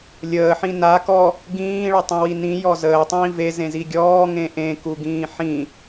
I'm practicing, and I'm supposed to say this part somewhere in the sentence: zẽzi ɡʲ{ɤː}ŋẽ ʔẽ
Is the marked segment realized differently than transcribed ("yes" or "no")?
yes